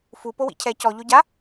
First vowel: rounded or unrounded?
rounded